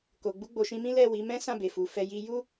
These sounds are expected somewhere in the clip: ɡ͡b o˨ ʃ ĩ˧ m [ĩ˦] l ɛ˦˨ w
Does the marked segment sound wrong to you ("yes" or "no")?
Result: no